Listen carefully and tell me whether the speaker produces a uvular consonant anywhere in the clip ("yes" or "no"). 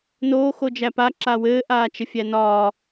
no